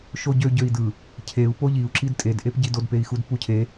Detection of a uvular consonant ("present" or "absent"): absent